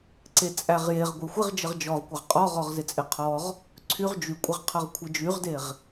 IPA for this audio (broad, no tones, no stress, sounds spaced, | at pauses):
ǀ e t͡sʼ æ ʁ j e ʁ ɡʷ e xʷ ɪ ʁ d͡ʒ ə ʁ d͡ʒ ɔ ʁ kʷ ə ʁ qʼ ɔ ʁ ɔ ʁ z ɪ t͡sʼ ɪ qʰ ɔ ʁ | ǀʰ y ʁ d͡ʒ y kʷʼ ɪ ʁ qʰ ʌ ʁ kʷʰ ɪ d͡ʒ y ʁ d e ʁ